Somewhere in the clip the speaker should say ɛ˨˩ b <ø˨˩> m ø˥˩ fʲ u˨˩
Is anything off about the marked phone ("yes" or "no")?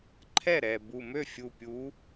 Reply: yes